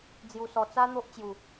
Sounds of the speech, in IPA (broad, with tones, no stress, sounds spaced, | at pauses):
d͡z j u˧ s ɔ˧ t͡s a˦ n̪ o˦ ʔ t͡ɕ j u˨˩